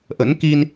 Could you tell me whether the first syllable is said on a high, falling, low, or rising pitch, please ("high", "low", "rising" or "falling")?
rising